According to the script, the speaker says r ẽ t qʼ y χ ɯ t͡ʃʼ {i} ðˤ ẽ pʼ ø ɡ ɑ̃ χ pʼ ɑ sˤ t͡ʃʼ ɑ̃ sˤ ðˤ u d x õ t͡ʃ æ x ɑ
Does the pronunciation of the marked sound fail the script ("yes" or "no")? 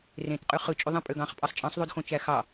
yes